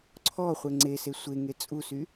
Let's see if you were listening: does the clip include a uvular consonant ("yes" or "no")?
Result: yes